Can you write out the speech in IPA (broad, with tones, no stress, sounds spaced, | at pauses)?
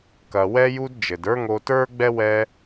k ɐ˨ w ɛ˦ j u˦ d d͡ʒ ɘ˨ d ə˞˦ ŋ o˧ t ə˞˦ ɡ͡b ɛ˦ w ɛ˦